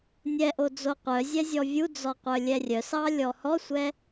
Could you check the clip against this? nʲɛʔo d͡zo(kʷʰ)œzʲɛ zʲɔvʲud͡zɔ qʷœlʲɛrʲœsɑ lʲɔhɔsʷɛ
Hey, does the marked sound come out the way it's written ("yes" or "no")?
no